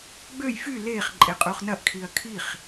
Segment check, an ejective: present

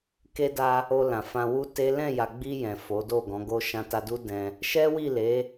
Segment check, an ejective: absent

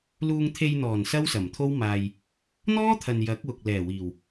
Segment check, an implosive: absent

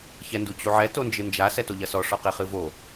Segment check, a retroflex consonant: present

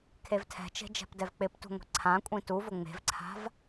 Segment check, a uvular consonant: absent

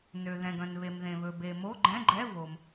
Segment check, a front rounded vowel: present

